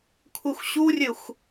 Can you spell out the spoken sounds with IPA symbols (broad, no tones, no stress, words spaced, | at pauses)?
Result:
kʷʰɪxʷɕurʲɘxʷ